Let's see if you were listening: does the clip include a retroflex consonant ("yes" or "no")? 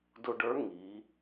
yes